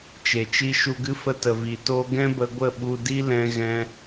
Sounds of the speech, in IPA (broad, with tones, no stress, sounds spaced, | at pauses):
t͡ʃ e˨ t͡ʃ i˧ ʃ u˧ ɡ ɨ˦ f ə˧ t ə˨ v i˨ t oː˧ ɡ ɛ̃˦ b ə˧ ɡʷ ə˦˨ ɓ u˧ d i˦ l ɛ̃˧ ɣ ɛ̃˧